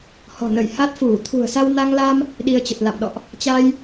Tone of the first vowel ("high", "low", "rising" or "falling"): low